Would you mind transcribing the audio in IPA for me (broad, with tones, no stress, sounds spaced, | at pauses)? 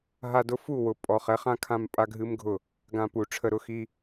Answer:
ɦ a˧ d ʊ˦ f u˦˨ w ʊ˨ pʼ ɔ˨ χ ɛ˨˦ χ ã˦ kʰ ã˦˨ m pʼ a˦ ɡʱ ɨ˦ m ɡʱ ʊ˦˨ | ɡ ã˧ p u˨ ʈ͡ʂʰ ə˧ ɾ ʊ˦ x i˦